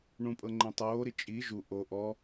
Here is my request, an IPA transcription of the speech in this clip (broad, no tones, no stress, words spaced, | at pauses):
ɳũpʼɤ ŋ͡ǃẽtˤoːɾi t͡ʃʼi ʒu ʔo ʔɔ